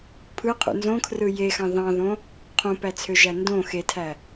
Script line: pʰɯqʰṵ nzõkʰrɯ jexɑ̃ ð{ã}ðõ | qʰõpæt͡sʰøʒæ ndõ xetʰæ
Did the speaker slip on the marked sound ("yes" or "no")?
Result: yes